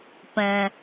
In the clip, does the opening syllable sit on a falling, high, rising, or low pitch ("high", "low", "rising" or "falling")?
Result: low